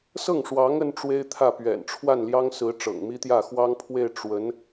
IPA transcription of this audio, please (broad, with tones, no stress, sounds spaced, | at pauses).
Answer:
s ɤ˥˩ ŋ ʂ w ɑ˧˥ ŋ ə˥ n ʈ͡ʂ w e˥ ɪ̯ t̪ʰ ä˥˩ p ɥ ɛ̰˨˩ n ʈ͡ʂʰ w a˥˩ n l j ɑ˥ ŋ s ɹ̩˧˥ ʈ͡ʂ ɤ̰˨˩ ŋ m i˥ t̪ j ä˥˩ x w ɑ˥ ŋ pʰ w e˥˩ ɪ̯ ʈ͡ʂ w ə˧˥ n